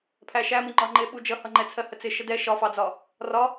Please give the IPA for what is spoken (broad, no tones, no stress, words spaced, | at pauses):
pʰæʃæmi ŋ͡ǃɒŋ͡ǃɪɓu d͡ʒʌhʌŋ͡ǃɛ t͡sʰɜhət͡sɪ ʃədɛ ʃɒfɑd͡zɒ | rɒ